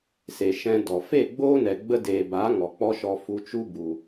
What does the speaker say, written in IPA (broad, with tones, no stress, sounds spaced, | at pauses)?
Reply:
s e˨ ʃ ɛ̃˧ d ɔ˨ f e˦˨ ɡ͡b oː˦ n ɛ˨ ɡ͡b ə˧ d eː˨ b a˨˦ ŋ ɔ˨ k͡p ɔ˦ ʃ ɔ˧ f u˧ t͡ʃ u˦ b u˧